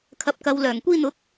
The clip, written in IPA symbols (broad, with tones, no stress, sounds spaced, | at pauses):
kʰ ɐ˨ p̚ k ɐ˨ w l œː˨˩ ŋ kʷ iː˧ n̪ ʊ˨˥ k̚